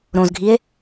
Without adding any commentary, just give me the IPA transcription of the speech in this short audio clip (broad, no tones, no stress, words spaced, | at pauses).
ɾõzɡʱie̯